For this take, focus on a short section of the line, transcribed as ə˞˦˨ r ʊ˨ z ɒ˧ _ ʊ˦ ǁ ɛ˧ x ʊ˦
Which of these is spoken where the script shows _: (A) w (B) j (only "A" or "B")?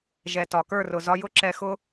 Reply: B